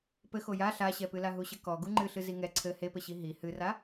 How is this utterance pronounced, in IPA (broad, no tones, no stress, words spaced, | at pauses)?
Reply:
pɘxo ja ɬaɕɛpɨla ɦuɕɘkɔ ɡuŋ͡ǃɨɬɨ ziŋɛ ǀʰɘ hepɘɕi ɦi hɨra